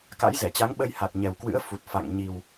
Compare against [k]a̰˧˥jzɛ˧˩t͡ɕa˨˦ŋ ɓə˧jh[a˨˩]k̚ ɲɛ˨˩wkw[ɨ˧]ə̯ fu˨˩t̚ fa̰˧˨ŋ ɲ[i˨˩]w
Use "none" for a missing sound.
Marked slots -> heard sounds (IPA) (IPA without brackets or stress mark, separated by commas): k, a˨˩, ɨ̰˧˥, i˨˩